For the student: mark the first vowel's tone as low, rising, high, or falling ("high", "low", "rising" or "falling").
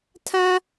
high